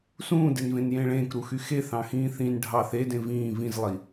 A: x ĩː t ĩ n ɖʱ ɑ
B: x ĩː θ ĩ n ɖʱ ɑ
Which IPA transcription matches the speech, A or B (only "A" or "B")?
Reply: B